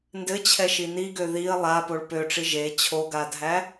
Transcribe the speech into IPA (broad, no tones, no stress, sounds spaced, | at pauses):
n d ɘ t͡ɕʰ ɛ ʃ i n i ɡ ø ð i ə̯ lˠ a p o ɭ p ø ʈ͡ʂ i ʒ e t͡ɕʰ o ɡ a dʱ æ